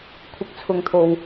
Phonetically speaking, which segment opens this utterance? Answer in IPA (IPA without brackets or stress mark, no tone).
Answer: kʷʰ